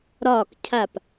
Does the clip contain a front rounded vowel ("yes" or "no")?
no